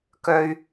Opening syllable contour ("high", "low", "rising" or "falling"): high